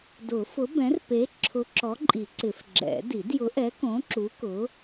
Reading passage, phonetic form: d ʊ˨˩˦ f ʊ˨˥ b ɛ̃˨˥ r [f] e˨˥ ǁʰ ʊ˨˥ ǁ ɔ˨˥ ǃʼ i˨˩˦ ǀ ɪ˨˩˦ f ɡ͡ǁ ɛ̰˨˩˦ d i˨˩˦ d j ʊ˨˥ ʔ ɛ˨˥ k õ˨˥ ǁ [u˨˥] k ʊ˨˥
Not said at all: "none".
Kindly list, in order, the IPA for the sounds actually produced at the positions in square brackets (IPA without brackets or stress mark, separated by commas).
p, u˨˥